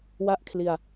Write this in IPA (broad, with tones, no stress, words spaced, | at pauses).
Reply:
wa˥˩ʔkʰli˧a̯